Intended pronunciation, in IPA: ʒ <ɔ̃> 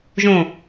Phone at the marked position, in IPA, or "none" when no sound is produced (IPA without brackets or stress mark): õ